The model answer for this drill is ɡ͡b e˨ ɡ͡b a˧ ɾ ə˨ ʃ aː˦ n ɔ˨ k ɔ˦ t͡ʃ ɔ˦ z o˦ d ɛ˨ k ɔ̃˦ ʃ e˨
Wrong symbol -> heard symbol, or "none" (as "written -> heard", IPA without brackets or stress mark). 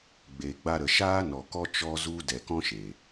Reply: o˦ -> u˦